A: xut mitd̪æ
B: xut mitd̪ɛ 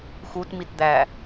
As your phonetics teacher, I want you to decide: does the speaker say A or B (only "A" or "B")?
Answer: A